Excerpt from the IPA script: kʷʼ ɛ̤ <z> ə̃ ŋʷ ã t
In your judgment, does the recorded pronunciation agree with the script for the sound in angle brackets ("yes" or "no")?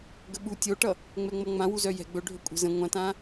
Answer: yes